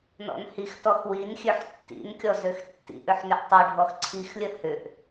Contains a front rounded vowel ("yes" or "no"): yes